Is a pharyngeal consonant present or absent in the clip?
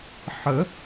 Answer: present